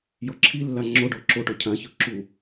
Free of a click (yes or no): no